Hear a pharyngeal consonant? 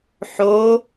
yes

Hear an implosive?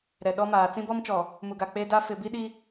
yes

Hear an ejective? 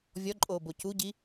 yes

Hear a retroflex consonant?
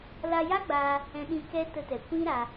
no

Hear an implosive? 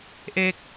no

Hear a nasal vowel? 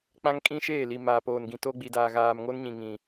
yes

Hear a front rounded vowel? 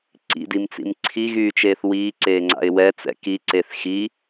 yes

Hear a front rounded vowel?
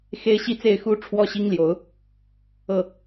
no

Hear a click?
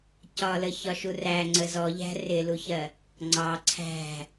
yes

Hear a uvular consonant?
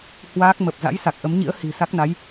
no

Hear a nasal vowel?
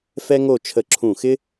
yes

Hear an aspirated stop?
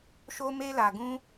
no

